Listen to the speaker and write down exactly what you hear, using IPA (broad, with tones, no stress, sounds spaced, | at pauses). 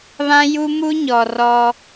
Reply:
β ã˦ j u˦ m u˦ ɲ ɔ˨ r ɔ˦